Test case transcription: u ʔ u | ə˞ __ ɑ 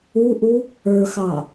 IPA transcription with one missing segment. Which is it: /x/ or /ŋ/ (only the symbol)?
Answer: x